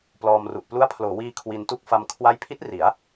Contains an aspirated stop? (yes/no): yes